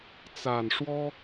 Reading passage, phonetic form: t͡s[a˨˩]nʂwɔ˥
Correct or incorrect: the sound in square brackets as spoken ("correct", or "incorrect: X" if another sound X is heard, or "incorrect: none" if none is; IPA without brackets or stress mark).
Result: correct